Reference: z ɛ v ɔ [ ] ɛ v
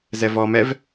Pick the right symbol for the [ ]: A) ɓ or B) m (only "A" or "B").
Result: B